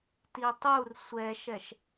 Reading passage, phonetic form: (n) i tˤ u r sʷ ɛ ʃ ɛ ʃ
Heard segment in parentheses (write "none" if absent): t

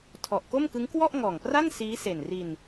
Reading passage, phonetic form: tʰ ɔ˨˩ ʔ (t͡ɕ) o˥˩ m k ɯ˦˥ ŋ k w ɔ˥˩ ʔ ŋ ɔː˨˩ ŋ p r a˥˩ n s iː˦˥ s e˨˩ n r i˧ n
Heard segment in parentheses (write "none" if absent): k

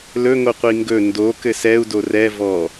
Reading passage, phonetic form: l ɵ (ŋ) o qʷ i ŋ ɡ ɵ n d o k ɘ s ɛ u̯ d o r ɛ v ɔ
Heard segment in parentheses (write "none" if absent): ŋ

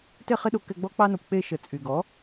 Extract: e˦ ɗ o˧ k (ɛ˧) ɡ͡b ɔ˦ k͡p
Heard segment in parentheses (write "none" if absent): ɛ˧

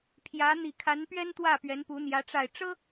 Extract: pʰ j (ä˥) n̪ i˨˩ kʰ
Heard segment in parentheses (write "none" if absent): ä˧˥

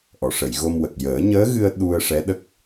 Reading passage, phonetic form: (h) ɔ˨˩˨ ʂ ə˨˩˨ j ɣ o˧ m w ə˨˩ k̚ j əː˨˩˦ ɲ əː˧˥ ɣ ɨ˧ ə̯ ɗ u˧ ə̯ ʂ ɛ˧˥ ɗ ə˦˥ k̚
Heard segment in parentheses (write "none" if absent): ʔ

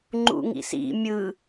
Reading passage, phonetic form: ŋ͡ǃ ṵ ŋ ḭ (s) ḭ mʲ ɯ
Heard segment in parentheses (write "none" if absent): s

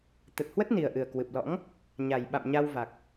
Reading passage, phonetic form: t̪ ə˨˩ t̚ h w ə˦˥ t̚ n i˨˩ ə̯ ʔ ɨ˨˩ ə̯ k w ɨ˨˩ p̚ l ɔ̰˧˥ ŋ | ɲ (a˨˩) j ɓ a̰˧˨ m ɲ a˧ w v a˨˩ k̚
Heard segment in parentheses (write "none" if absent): a˨˩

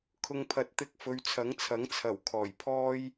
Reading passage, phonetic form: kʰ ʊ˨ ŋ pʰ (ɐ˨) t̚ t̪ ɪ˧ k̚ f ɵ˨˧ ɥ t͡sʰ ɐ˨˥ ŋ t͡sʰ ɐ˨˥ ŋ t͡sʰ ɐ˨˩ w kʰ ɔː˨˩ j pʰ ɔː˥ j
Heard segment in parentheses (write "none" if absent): ɐ˨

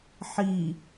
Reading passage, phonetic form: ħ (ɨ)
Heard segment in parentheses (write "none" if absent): i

